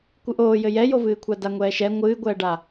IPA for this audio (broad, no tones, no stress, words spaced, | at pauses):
kʷɨʔoːjɘ jɛjovɨːkʷʰa daŋʷɛːʃɛ ŋʷɨːɡʷɛːɖa